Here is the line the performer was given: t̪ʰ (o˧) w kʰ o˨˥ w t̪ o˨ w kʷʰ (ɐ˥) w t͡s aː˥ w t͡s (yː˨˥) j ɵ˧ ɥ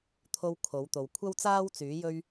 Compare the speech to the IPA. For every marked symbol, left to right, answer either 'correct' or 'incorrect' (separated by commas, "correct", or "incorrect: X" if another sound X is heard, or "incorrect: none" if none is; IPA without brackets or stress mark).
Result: correct, correct, correct